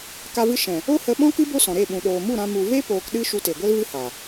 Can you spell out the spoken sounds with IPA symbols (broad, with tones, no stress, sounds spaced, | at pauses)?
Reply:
k a˧ v ɨ˧ ʃ ɛ̃˨ | o˦ h ə˧ ɓ ɔ̃˦ k ɨ˦ b o˦ s ɔ̃˨ ɾ e˦˨ ɓ ũ˨ ɗ oː˨ m u˦˨ ɾ ã˧ m u˨ v e˦ p oː˧ k ɗ ɨ˦ ʃ u˧ t e˨ ɡʷ ɛ˦ l v ɨ˦ h a˨